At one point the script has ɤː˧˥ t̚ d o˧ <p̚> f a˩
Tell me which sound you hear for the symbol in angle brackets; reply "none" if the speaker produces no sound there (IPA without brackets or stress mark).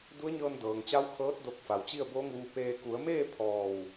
k̚